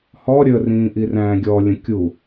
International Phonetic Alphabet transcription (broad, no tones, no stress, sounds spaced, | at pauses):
h ɔ ɾʲ ə r ĩː ʔ i r æ̃ː ɡʲ ɔ lʲ ə̃ kʲ u